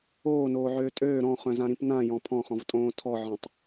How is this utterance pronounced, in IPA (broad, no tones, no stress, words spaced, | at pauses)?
oːnoːʕøː tʼøː ɾɔ̃χœ̃zãɾĩp nãjɔ̃ pʰɔ̃χɔ̃vtʼõː tʰɔʕɔ̃tˤ